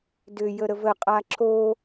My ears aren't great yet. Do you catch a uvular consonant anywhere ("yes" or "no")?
yes